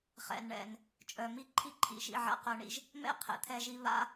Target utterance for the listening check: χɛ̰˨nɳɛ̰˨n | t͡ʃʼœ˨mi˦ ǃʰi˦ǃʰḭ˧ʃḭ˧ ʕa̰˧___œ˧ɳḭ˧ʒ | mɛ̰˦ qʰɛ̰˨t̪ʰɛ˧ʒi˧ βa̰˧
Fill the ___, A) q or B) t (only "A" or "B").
A